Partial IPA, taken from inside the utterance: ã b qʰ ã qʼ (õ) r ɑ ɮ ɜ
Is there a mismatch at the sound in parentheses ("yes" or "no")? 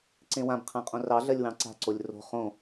no